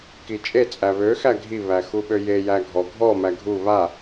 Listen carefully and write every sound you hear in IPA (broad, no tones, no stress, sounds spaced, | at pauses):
k i t͡ʃʼ e t͡sʼ æ β ø x æ ɡʱ i β æ x u ɓ ø j e j æ ɡʱ ɔ ɡʱ ɔ m æ ɡʱ u β a